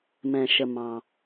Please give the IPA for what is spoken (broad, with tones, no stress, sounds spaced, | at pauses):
m ɛ̃˩ ʃ ə˩ m ɑ̃˩